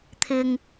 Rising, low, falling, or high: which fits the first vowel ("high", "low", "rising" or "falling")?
low